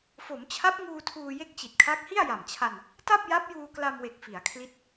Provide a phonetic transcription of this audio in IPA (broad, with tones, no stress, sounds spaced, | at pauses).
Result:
f o˩˦ m t͡ɕʰ a˦˥ p̚ ŋ uː˧ tʰ uː˧ j e˥˩ k̚ t͡ɕ i˨˩ t̚ kʰ a˦˥ k̚ h i˥˩ a̯ j a˨˩ m t͡ɕʰ a˧ n | t a˥˩ p̚ j a˦˥ p̚ j uː˧ k l a˧ m w e˨˩ k̚ f i˩˦ a̯ kʰ l i˦˥ t̚